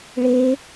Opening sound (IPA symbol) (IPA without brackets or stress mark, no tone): ɭ